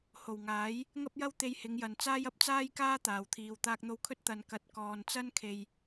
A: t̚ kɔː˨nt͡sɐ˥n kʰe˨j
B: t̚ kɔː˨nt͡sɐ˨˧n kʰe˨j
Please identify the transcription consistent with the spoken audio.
A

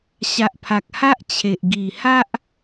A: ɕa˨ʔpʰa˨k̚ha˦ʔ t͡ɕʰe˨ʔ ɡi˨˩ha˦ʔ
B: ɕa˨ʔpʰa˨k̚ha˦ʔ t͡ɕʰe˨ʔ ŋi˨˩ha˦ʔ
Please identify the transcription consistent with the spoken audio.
A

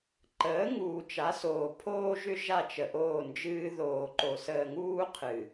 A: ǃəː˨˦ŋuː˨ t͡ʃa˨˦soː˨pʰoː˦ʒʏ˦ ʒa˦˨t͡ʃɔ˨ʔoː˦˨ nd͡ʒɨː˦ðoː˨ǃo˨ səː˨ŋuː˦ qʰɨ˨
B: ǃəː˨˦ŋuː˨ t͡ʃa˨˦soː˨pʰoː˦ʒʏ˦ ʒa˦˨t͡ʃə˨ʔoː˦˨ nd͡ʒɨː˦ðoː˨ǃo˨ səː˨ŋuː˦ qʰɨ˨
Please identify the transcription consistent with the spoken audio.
B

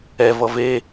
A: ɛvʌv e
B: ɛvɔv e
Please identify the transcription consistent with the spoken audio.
A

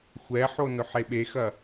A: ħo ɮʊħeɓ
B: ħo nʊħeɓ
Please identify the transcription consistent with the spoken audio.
B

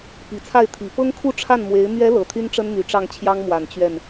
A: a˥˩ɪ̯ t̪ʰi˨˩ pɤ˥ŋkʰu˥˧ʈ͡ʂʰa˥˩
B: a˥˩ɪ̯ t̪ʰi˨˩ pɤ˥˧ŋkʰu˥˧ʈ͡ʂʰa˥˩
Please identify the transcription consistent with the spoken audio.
A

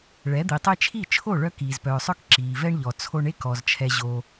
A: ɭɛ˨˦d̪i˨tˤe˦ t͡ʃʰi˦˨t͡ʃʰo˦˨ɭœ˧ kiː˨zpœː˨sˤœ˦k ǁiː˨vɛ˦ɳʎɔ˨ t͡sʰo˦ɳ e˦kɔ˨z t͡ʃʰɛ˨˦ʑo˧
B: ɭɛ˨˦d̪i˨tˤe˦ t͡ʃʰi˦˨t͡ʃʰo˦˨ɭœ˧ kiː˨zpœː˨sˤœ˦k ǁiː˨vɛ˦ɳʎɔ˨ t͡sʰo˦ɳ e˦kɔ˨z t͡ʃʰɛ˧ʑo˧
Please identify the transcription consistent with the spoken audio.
B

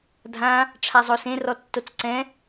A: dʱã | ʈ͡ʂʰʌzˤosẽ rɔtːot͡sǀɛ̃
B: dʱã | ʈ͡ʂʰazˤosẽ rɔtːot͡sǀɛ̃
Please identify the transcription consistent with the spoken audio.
B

